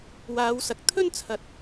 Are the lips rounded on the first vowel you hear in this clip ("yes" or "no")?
no